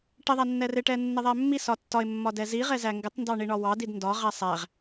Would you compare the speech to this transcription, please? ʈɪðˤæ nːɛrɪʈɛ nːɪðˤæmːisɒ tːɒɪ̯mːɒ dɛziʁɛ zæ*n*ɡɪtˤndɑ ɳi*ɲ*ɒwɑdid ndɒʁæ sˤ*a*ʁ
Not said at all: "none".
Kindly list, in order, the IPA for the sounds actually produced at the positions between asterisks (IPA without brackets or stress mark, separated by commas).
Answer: ŋ, ɳ, æ